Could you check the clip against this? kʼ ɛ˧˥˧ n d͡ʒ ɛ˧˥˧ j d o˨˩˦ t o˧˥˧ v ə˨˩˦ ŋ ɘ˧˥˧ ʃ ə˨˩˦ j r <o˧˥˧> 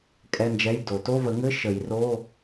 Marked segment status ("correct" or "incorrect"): correct